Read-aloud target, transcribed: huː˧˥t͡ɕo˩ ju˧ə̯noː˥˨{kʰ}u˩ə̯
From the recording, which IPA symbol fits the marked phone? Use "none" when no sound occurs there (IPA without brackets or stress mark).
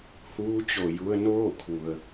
kʰ